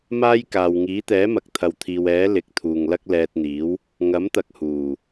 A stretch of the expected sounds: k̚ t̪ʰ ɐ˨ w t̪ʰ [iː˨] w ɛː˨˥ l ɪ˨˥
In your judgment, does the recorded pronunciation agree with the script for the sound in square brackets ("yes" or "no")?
yes